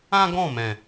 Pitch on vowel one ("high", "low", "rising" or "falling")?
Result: high